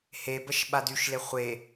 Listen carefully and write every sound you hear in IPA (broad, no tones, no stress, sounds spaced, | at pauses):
h e b ə ʃ ɓ a d y ʃ l e χʷ e